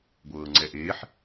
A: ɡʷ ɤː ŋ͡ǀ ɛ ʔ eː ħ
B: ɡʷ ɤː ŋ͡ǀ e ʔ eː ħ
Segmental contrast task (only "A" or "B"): A